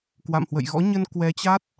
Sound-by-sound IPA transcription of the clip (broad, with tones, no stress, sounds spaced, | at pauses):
k w a̰˧˨ m h w ə̰˧˨ j ɣ ɔ̰˧˥ ɲ ə˧ n k w ɛ˨˦ t͡ɕ a˦˥ t̚